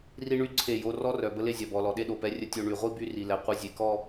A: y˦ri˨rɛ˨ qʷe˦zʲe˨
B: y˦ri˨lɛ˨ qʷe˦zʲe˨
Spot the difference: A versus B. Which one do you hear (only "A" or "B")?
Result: B